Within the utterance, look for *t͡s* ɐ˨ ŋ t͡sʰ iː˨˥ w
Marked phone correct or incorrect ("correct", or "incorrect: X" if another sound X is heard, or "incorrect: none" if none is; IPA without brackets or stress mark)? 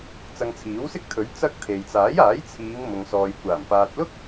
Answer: correct